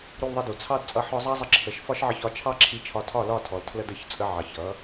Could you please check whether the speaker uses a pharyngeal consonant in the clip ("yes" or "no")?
yes